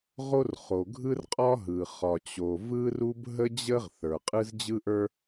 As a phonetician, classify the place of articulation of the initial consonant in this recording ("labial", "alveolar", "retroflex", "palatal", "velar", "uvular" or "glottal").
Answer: uvular